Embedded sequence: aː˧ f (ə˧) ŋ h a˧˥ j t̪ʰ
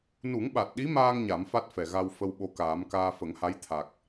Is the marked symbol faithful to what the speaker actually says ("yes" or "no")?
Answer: no